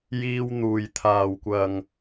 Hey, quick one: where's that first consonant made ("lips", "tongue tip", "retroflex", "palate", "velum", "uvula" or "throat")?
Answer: palate